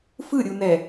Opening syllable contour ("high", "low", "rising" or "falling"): falling